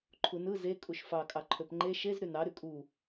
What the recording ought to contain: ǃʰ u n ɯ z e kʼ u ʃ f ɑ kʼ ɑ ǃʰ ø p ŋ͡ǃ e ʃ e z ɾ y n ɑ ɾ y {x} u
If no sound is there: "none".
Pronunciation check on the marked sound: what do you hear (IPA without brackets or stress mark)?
kʼ